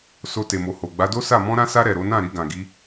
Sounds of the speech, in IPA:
s o˧ t e˨ m o˨ h o˨ ɡ͡b a˨˦ d o˦ s a˦˨ m ɔ̃˧ ɾ ã˧ s a˧ ɾ ɛ˨ ɾ o˨˦ n ã˦˨ ɾ i˧ ɡ ã˨ ɡ i˨˦

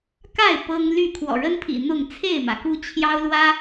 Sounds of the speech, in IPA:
k a˥˨ ɪ̯ p ɤ˦ ŋ l y˥˨ kʰ w ɔ̰˨˩ ɻ ə˦ n pʰ ḭ˨˩ n̪ ʊ˥˨ ŋ t͡sʰ e˥˨ ɪ̯ m ä˩ k u˦ t͡ɕʰ j ɑ˦ ʊ̯ l w ä˦

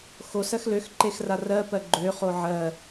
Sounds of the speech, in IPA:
x o s ɜ x l ø x ǃ e x r a r ɜ p ɜ ɡ͡ǃ ø χ o ʕ ɜ

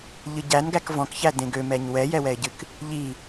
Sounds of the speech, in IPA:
ʎ ɨ ɟ æ n ɡ æ k v ɔ̃ k ç æ d ẽ ɡ ø m ɛ ɲ w ɛ j ɛ w ɛ ɪ̯ ɟ ɨ k | ʎ i

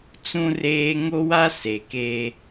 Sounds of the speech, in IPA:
t͡s ũ˦ r eː˦ ŋ o˦ w a˦ s e˨ k eː˦

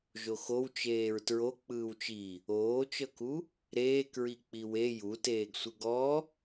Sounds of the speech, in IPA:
ʒ o x o w t͡ʃ eː ɹ t ɹ o k͡p ɯː w t͡ʃ i | oː t͡ʃ ɤ k u | ɾ eː k ɹ i k͡p i w e j u t eː ɡ sʷ ɯ ɡ ɔ

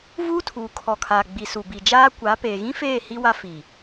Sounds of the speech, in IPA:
v uː˦ tʰ uː˨ kʰ ɔ˨ kʰ aː˨ ɡ͡b i˨ s u˨ b i˨ d͡ʒ aː˦ kʷ a˨˦ p eː˨ ɣ ĩ˦ f eː˦˨ h i˦ w a˦ f i˨

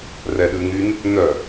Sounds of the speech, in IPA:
r ɛ ɗ ʉ ŋ y n | n œ

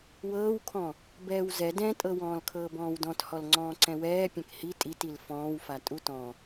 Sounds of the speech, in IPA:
w ɤː w kʰ ɔ̃ | b ɛː w z ɛ d ɛ̃ tʼ ɤ w ɔ̃ː l kʰ ɤː b ɔ̃ː w d ɔ̃ t h ɔ l ŋ͡ǀ ɔ̃ː ǀ ɛ̃ w ɛː pʲ ɛ̃ k h i tʼ i t i l f ɔ̃ː w f a tʼ u t ɔ̃

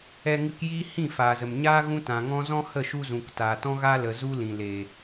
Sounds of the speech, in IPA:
ɛ˧ ŋ ɨ˧ k j iː˦ h ĩ˦˨ f aː˨ z ə˨ m ɲ aː˦ ɣ ũ˦ t ã˨ ŋ ɔ̃˦ z ɔ̃˦ h ə˦˨ ʃ u˧ z ũ˨ k t aː˨ t ɔ̃˦ ɣ aː˦ l ə˨ z u˦ l ĩ˨ l eː˨

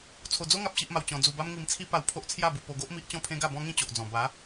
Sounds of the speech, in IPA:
t͡sʰ o˧ d͡z o˦ ŋ a˦ p̚ ɕ i˦ ʔ m a˧ w t͡ɕ ɔ̃˧ d͡z u˧ b a˦ m ŋ i˧ m t͡sʰ i˦ p a˧ w pʰ o˦ ʔ t͡sʰ j a˥˧ b u˧ p o˧ ɡ o˦ ʔ m i˦ ʔ t͡ɕ ɔ̃˥˧ pʰ ẽ˦ ɡ a˥˧ b ɔ̃˦ ŋ ĩ˦ t͡ɕ o˨ ʔ d͡z ɔ̃˨˩ b a˨˦

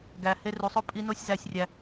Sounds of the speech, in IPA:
ɡ æ˨ h e˧ r u˨ sˤ o˦ pʼ i˧ n o˦ sʲ z æ˧ sʲ rʲ æ˧

